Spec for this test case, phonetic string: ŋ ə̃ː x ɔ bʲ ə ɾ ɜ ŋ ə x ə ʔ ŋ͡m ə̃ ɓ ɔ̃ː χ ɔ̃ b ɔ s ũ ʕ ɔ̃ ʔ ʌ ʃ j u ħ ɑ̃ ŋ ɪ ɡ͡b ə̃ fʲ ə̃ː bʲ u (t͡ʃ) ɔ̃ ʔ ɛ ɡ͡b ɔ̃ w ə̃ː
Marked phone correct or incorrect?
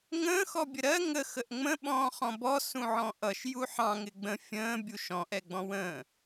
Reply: incorrect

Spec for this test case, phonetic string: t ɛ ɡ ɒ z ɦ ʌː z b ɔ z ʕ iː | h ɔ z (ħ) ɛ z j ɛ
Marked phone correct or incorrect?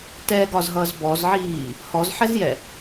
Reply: correct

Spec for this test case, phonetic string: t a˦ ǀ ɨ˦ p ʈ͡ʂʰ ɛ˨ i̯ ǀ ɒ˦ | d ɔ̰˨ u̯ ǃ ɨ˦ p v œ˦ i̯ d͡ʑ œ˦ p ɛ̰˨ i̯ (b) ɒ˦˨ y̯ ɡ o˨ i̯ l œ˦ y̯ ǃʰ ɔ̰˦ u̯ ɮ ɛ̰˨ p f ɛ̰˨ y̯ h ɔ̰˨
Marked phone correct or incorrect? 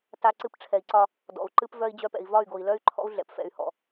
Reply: incorrect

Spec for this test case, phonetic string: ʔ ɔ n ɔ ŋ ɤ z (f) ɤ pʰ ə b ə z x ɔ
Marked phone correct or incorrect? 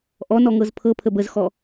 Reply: incorrect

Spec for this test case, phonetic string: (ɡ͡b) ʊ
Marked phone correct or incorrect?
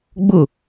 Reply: correct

